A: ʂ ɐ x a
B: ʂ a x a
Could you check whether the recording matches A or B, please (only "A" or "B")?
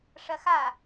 A